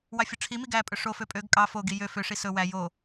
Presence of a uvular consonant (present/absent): absent